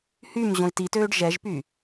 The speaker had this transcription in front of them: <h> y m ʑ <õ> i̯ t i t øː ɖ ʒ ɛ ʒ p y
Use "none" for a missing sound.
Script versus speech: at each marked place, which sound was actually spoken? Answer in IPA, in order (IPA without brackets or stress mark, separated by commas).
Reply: h, õ